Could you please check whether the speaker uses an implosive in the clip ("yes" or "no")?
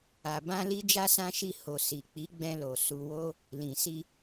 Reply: no